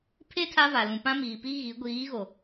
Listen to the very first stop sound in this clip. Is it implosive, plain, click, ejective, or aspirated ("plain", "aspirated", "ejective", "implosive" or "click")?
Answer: aspirated